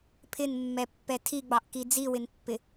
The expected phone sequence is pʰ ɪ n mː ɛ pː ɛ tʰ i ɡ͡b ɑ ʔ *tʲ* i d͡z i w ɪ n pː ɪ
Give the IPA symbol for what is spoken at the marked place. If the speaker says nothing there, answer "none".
k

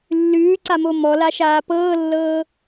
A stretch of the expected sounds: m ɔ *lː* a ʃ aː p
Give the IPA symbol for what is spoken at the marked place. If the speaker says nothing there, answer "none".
l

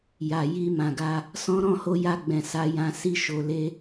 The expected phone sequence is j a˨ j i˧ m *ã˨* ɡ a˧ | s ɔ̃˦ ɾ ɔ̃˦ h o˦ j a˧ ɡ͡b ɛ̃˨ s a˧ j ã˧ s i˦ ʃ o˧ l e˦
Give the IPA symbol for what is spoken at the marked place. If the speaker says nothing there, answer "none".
ã˨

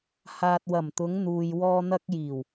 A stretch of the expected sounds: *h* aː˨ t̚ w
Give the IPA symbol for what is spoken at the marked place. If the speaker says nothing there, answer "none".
h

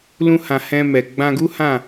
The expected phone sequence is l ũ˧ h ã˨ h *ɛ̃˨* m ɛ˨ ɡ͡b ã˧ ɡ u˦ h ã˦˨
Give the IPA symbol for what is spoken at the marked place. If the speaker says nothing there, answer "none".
ɛ̃˧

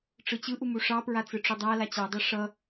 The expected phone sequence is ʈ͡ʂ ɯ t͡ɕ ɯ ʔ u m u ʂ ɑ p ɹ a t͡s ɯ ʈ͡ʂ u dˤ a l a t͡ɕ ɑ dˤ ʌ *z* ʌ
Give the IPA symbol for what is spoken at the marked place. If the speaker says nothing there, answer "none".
ʂ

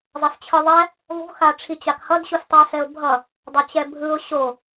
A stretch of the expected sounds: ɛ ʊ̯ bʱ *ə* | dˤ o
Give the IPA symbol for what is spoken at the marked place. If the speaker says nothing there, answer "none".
ʌ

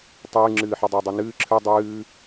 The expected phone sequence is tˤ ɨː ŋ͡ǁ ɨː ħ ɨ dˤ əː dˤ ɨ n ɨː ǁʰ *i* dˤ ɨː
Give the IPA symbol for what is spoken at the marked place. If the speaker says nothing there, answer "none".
ɨ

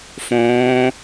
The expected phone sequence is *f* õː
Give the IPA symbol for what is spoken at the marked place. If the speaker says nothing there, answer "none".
f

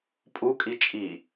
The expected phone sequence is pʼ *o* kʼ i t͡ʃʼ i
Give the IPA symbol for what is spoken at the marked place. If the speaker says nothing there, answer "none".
u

